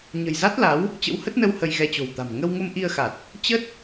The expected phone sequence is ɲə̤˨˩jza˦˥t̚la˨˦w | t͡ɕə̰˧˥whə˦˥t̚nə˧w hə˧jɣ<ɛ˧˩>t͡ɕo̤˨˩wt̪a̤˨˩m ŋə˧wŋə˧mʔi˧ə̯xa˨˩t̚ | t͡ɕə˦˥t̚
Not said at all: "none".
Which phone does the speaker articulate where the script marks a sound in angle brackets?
ɛ˧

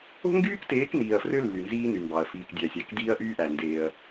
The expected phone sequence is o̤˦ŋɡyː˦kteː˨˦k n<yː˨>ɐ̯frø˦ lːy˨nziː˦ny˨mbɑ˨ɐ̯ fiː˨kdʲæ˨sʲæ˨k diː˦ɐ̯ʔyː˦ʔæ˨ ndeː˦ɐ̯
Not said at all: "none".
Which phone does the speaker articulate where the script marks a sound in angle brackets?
iː˨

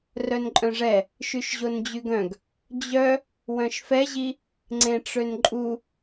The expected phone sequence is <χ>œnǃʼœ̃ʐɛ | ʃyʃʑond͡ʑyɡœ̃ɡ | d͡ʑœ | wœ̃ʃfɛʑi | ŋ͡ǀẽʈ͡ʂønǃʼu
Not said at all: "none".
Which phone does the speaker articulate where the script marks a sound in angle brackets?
r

